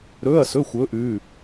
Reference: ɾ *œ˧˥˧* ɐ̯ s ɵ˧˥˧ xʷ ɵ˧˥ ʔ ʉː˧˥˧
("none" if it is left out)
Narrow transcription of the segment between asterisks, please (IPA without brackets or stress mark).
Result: ɵ˧˥˧